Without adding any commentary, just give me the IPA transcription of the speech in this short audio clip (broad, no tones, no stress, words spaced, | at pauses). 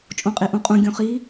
t͡ʃʼõqʼiʔũqʼũ ɡʲõχi